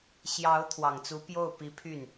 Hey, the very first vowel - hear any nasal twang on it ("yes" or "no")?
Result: no